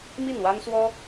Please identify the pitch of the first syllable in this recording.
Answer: falling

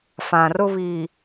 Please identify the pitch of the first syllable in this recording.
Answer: low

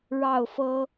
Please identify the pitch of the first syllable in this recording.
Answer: falling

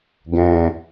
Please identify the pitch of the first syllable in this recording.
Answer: low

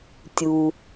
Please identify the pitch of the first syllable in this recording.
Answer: low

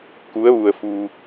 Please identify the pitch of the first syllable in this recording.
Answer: rising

